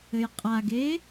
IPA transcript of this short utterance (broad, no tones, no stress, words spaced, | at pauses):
ɘjqʼaɡe